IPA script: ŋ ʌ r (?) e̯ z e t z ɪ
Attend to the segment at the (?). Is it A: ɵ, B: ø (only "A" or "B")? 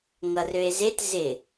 B